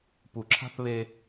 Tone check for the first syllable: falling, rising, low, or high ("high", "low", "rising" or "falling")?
low